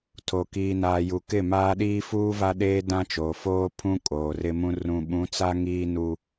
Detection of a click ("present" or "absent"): absent